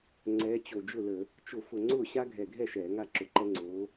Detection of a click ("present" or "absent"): present